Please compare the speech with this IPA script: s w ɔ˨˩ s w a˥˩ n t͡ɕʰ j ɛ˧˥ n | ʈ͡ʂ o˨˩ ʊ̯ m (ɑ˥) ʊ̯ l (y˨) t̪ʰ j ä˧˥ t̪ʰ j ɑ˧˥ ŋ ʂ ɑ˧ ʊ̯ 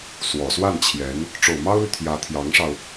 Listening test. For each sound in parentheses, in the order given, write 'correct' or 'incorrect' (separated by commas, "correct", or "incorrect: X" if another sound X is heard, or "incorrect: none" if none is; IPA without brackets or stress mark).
correct, correct